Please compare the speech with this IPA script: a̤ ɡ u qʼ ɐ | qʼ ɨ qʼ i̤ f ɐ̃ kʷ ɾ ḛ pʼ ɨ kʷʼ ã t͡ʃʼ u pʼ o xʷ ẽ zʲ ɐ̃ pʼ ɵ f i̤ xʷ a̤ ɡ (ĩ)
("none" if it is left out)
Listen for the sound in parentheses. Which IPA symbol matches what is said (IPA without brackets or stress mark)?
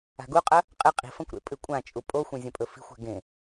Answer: ẽ